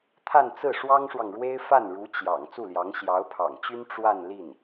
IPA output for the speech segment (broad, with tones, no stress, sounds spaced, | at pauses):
t̪ʰ a˥˧ n t͡s ɹ̩˥˩ ʂ w ɑ˥ ŋ ʂ w ɑ˨ ŋ ɻ w e˥ ɪ̯ f a˥˩ n ɻ u˧˥ t͡ɕ j ɑ̰˨˩ ŋ t͡s u˥˩ l j ɑ˧˥ ŋ ɕ j ɑ˧˥ ʊ̯ pʰ ɑ̰˨˩ ŋ t͡ɕ y˥ n ʈ͡ʂ w a˥˧ n l i˥˩ n